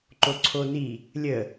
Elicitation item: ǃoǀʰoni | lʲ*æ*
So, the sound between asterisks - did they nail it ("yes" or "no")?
no